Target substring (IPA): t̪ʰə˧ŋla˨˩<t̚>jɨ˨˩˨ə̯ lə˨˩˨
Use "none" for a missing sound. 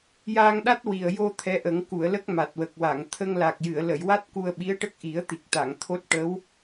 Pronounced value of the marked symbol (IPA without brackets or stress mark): k̚